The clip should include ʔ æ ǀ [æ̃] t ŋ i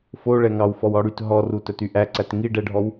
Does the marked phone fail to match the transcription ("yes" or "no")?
yes